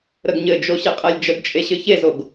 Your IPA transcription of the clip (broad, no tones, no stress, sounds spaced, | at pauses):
ɾ ə ɡ ɲ ɘ d͡ʒ o ɕ e qʼ ɛ lʲ d͡ʒ ə ɡ t͡ʃʼ e ɕ ɘ ç e z o ɡ